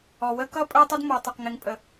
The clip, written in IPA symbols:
ɔ˨ w ə˦ k ʌ˦ pʼ ə˞˦ tˤ ʌ˦ d m ɔ˨ tˤ ʌ˨ q ŋ ɪ˨ ŋ pʼ ə˨

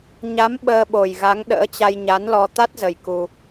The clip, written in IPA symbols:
ɲ a˨˦ m ɓ əː˧ ɓ o˨˩ j ɣ a˨˦ ŋ ɗ ə̰ː˧˥ t͡ɕ a˧ j ɲ a˨˦ n l ɔ˧ t̪ a˦˥ t̚ z ə˨˩ j k u˧

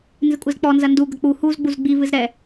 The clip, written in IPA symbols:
n z ɨ kʷʼ ɨ z k͡p ɔ n z ɐ n d u ɡ ɐ k͡p u h u z ɡ͡b u z ɡ͡b i v ɨ z ɾ ɛ

